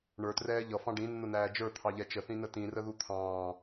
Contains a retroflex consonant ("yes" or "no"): yes